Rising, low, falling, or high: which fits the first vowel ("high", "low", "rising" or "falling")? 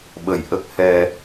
low